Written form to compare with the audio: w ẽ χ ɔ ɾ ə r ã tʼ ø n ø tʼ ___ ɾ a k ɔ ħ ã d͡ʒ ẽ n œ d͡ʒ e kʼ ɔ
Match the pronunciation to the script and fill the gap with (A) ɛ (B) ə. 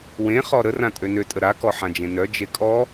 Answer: B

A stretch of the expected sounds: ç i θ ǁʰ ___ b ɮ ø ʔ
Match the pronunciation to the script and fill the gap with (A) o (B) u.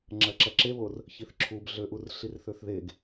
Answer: B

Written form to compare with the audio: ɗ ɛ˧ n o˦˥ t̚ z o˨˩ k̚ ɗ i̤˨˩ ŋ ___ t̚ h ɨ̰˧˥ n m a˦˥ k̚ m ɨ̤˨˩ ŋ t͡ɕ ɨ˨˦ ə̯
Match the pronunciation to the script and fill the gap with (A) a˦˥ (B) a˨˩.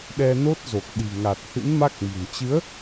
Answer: B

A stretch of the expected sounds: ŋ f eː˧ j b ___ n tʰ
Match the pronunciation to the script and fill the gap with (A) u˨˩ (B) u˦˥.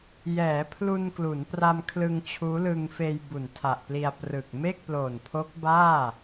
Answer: A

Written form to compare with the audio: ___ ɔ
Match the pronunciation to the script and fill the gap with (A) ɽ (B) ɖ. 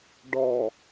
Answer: B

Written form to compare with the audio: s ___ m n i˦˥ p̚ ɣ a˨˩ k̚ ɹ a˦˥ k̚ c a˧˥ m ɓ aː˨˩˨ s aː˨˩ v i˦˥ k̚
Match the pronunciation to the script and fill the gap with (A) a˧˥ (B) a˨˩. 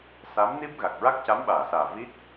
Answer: A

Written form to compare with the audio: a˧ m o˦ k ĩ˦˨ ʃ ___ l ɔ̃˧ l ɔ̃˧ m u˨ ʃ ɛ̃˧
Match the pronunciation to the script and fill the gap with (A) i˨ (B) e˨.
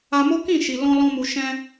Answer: A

